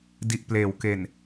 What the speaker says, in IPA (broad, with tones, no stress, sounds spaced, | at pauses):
d i˨˩ ʔ p l eː˩˦ w k e˨˩ n